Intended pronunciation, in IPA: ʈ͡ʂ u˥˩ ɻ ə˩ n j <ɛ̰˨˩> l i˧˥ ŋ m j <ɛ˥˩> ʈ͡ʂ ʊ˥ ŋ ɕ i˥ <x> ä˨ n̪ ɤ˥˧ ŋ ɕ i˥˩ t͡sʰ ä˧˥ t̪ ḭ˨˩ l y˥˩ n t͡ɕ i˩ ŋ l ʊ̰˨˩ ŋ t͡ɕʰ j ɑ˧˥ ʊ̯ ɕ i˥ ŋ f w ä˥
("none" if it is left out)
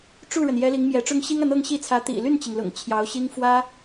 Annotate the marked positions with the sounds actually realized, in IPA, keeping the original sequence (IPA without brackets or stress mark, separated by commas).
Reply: ɛ˧˥, ɛ˧˥, ŋ